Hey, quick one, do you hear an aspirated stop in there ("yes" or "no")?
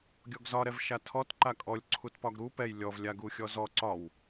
yes